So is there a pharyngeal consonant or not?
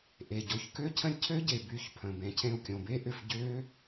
no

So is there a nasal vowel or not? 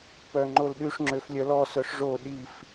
no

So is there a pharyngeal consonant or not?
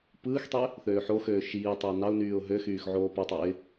yes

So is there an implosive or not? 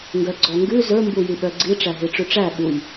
yes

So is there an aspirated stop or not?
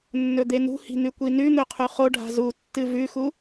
yes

